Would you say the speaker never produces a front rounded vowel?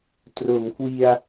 yes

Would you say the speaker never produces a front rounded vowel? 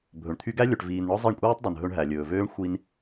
no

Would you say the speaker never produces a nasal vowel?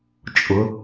yes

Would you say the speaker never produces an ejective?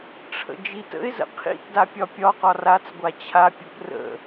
yes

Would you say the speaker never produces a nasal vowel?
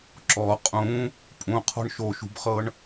no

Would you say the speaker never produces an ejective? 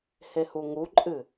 no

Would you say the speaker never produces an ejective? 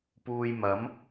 yes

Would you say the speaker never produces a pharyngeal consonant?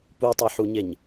no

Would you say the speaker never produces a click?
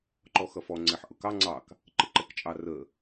no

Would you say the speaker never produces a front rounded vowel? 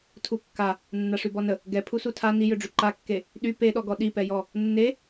no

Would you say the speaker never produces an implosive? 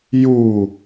yes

